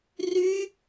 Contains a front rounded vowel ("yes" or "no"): yes